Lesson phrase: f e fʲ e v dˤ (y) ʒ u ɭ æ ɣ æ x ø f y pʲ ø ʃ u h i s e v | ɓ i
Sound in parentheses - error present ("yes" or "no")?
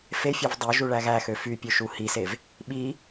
yes